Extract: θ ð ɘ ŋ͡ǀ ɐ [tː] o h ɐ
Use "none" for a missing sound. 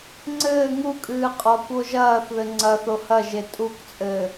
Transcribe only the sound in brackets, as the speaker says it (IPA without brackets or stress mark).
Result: θ